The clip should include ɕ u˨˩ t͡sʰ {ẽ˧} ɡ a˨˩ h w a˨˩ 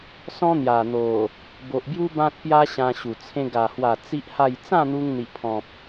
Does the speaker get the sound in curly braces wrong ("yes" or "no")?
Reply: no